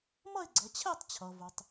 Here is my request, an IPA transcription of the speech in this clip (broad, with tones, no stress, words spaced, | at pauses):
mʌ˥˧e̯ɡ͡ǀʌ˩˧t͡ɕʰɛ˥˧tˤt͡ɕʰʌ˩ vʊ˩tˤ